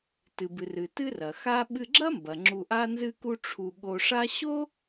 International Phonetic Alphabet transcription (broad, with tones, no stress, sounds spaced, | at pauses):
t ɨ˩ b ɨ˩ r ɨ˩ t ɨ˥ r ɐ˩ x a˥ ɓ ɨ˧ ɡ͡ǁ ɐ˥ m b ɐ˩ ŋ͡ǁ u˧ ʔ a˥ n z ɨ˥ k u˥ ʈ͡ʂʰ u˧ ɠ o˧ ʂ a˥ ɕ o˥